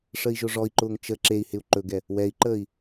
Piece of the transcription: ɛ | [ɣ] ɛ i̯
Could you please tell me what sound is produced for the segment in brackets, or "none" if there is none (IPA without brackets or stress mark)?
w